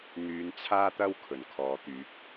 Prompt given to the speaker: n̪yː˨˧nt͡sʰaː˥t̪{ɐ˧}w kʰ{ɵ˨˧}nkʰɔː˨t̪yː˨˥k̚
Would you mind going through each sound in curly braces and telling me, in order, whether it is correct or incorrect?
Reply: incorrect, incorrect

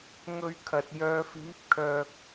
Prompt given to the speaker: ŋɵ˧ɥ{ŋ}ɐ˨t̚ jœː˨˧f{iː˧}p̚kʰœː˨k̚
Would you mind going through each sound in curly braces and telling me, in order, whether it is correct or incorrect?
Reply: incorrect, incorrect

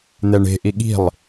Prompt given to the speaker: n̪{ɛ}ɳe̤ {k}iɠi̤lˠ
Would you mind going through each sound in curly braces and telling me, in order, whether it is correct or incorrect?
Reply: correct, incorrect

